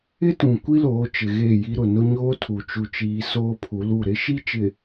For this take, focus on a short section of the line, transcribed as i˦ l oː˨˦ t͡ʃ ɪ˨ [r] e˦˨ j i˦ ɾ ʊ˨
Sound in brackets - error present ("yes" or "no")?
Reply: yes